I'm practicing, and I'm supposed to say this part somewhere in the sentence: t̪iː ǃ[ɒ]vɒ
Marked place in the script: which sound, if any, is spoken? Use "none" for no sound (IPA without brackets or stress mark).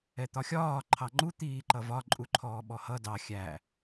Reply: ʌ